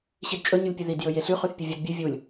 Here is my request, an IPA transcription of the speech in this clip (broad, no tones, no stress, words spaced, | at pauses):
ɕidt͡ʃʼɵɲulʲpʲɨ ðidjɵ jeɬʉ χʉθpʲɵvʲɐd bʲɨ vʲulʲ